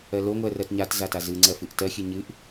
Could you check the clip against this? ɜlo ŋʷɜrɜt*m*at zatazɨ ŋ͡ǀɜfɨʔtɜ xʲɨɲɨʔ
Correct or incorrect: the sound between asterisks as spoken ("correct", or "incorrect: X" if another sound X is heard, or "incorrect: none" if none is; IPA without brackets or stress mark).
incorrect: ɲ